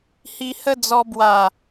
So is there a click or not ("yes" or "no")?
no